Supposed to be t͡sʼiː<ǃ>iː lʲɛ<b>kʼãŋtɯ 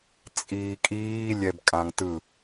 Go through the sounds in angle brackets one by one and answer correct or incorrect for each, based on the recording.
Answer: incorrect: kʼ, correct

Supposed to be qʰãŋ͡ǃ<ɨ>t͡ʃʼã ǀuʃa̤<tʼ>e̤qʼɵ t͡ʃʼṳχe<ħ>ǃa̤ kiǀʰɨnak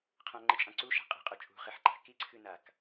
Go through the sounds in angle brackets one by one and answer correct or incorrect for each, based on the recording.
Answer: correct, incorrect: qʼ, correct

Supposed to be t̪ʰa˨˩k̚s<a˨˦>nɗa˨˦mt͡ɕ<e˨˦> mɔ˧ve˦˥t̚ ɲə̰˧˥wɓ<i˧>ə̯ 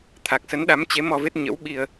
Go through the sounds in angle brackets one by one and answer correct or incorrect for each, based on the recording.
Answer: incorrect: ə˨˦, correct, correct

